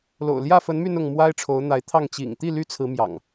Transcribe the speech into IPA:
l o̰˨˩ ʊ̯ l j ä˥˨ f ə˨˦ n m y˧ n ʊ˥˨ ŋ m w a˦ ɪ̯ ʈ͡ʂʰ o˨˦ ʊ̯ n̪ a˨˦ ɪ̯ t̪ʰ ɑ˥˨ ŋ t͡ɕ ḭ˨˩ ŋ t̪ i˥˨ l y˦ t͡sʰ ɹ̩˨˦ m j ɑ̰˨˩ ŋ

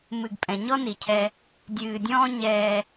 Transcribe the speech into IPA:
m ɨ˨ ɡ pʼ ɛ̃˨ ɲ ɔ˦ n i˨ cʰ ɛ˦ | dʲ ɨː˨ dʲ ɔ̃ː˦ ɲ ɛː˦

